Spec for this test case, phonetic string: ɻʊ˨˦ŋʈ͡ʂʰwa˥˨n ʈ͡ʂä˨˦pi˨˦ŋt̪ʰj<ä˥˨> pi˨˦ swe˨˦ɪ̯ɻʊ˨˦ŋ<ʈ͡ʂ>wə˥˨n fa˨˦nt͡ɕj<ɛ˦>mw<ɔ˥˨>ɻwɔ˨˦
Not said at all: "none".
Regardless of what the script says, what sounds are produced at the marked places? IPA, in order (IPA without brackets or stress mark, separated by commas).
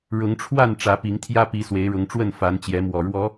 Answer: ä˦, ʈ͡ʂ, ɛ˨˦, ɔ˨˩